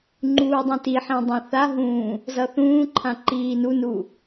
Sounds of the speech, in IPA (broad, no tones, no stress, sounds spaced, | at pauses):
ŋ͡ǃ uː dˤ ĩ t i ħ ĩ dˤ ã θ a ɦ ũː | z ʌ θ ũː ǃʰ ã ǃ iː n u n u